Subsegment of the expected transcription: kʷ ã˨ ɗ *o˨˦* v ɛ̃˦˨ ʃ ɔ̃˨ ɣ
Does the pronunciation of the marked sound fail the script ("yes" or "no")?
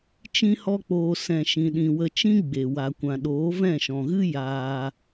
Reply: yes